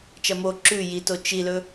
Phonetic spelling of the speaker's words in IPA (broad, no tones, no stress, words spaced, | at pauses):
t͡ʃɐmo ǁʉ jito t͡ʃilɵ